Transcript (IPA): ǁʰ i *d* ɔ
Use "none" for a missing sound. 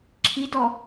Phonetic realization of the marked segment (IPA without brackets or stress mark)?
d